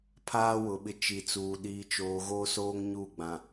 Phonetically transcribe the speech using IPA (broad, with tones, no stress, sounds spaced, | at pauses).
pʰ aː˦ w ʊ˨ ɓ ɪ˦ t͡ʃ i˨ t͡s uː˨ ɗ iː˨ t͡ʃ oː˨ ɣ oː˦ s oː˦ ŋ ɲ u˦˨ ɡ͡b ã˨